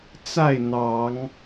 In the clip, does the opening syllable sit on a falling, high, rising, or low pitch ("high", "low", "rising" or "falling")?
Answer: falling